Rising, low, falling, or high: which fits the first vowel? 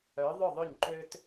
rising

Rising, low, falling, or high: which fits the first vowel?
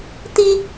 high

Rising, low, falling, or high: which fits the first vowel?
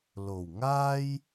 low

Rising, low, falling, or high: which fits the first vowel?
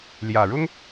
low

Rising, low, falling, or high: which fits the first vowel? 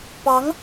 rising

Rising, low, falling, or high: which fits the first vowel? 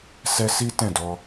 high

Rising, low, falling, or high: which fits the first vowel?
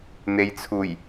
low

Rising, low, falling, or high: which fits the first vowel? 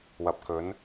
low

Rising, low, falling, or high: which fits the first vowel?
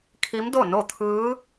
rising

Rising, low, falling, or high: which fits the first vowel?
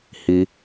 high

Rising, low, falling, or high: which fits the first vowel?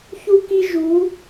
high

